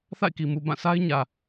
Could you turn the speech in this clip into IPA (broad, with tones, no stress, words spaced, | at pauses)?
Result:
θa̰˦˨ɪ̯ki˨mu˨ bã˦˨sʰa˦ɪ̯ ɲä˨